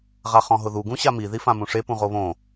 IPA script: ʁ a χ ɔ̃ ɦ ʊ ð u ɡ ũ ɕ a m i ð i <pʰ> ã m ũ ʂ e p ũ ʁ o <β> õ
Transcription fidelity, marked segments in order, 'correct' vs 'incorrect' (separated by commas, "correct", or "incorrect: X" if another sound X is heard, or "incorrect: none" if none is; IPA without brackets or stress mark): incorrect: f, correct